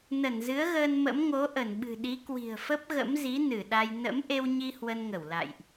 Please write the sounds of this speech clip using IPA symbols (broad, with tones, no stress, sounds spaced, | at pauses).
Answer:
n ə˧˩ n z ɨ˨˦ ə̯ ɣ əː˧ n m ə̰˧˥ m ŋ o˨˦ ʔ ə˧˩ n ɓ ɨ̤˨˩ ɗ i˨˦ k w i̤˨˩ ə̯ f ə˦˥ p̚ ɣ ə̰˧˥ m z i˨˦ n ɨ˧˩ ɗ a˧ j n ə̰˧˥ m ʔ e˧ w ɲ i˧ h w ə˧ n ŋ ə˧˩ w l a̰˧˨ j ʔ